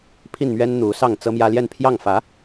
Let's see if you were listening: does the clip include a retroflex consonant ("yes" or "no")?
no